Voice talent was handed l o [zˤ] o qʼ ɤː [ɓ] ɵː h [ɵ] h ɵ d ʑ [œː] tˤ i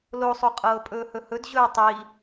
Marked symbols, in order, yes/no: no, no, yes, no

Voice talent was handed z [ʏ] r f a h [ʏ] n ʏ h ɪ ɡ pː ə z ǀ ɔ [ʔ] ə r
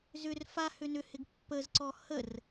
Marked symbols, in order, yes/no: yes, yes, no

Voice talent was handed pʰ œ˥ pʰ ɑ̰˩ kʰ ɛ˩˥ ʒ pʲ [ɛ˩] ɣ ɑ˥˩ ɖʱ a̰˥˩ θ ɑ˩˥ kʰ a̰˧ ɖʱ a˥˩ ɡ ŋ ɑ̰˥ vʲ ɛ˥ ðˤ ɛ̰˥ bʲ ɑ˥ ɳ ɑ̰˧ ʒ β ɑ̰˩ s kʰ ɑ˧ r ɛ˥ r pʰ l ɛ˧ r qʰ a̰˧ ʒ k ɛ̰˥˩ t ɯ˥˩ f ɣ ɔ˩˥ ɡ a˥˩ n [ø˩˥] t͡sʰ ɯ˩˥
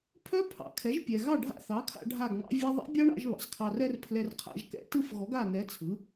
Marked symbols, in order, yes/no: yes, no

